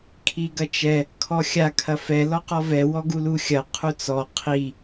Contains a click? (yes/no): no